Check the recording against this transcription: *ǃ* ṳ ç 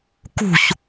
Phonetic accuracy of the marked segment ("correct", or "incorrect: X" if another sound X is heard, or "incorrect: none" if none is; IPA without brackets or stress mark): incorrect: k